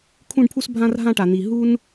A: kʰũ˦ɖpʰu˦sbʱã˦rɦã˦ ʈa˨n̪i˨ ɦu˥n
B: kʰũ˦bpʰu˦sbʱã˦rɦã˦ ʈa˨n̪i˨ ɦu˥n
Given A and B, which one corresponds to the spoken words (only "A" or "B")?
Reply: A